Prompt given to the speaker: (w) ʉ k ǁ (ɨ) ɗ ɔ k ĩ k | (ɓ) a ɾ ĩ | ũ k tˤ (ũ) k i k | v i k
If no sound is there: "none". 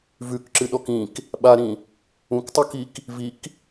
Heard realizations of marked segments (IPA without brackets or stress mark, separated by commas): v, ɨ, ɓ, u